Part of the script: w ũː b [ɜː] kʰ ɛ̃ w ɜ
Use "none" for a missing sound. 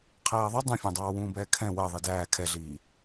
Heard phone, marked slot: ɛː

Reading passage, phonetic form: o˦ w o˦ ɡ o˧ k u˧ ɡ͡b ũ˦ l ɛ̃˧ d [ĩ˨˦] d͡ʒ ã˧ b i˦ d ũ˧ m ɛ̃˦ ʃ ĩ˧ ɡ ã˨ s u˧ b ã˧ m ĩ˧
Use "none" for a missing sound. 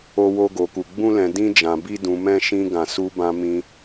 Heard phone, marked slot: ĩ˦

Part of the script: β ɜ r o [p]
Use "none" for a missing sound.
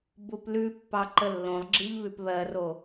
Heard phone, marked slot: none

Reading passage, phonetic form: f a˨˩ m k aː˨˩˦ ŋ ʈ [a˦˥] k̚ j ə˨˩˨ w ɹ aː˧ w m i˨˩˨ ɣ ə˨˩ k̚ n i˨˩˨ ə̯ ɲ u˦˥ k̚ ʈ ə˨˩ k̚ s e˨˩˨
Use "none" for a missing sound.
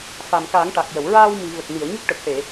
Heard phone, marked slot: a˨˩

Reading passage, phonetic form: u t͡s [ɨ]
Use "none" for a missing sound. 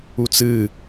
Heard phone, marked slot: ɨ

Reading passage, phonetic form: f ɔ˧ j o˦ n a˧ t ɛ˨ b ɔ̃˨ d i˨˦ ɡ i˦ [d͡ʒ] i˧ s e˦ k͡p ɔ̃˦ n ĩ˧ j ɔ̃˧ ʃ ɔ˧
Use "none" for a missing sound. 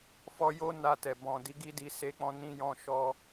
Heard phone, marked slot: d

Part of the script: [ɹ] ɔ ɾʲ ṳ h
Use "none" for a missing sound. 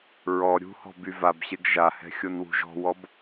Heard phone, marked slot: ɹ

